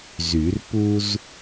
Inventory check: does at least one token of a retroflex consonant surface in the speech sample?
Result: no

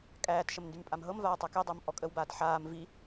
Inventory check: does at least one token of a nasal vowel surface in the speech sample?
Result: no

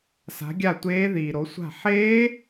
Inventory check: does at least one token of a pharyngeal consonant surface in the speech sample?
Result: yes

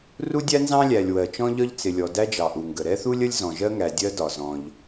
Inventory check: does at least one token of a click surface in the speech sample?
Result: no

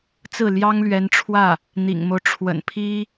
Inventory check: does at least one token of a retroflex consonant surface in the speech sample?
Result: yes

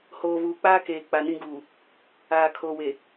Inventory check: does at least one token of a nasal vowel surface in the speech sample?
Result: yes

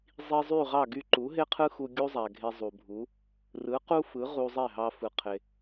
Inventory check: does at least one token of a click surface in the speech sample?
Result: yes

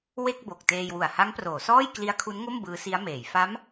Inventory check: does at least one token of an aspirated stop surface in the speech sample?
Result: yes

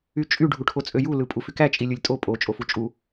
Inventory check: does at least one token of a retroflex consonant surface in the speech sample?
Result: yes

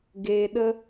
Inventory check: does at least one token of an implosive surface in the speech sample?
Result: yes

